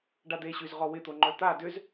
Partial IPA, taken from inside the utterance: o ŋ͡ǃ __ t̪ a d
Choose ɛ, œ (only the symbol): œ